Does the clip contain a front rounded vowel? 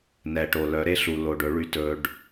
yes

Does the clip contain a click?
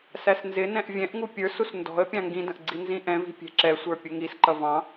yes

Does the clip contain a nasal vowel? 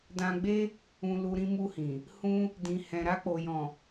yes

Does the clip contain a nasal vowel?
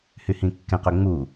yes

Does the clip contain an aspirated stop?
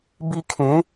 yes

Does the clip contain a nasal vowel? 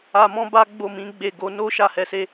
yes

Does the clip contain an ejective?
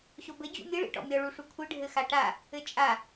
yes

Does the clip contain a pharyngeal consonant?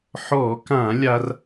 yes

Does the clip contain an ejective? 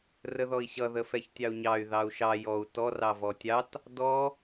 no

